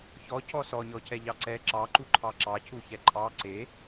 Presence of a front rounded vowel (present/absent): absent